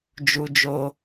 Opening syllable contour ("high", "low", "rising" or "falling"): high